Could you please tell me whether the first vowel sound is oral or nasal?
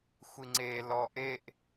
oral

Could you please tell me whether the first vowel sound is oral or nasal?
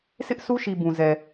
oral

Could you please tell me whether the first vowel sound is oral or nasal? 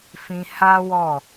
nasal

